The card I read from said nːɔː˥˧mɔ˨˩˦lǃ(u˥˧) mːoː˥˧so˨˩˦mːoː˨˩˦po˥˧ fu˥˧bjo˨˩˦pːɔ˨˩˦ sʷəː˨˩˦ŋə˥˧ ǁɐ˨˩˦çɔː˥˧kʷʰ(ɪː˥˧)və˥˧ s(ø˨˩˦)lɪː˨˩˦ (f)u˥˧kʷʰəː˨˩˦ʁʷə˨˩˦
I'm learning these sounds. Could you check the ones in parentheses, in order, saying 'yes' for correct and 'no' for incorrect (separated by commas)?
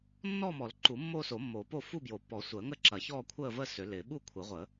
no, no, yes, no